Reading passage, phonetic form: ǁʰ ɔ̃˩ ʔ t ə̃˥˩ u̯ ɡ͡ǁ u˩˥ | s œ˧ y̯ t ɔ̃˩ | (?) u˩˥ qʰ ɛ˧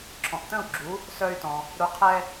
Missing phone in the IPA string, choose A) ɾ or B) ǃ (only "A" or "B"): A